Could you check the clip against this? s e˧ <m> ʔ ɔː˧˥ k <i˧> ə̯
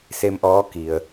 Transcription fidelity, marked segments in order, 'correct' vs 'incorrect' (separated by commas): correct, incorrect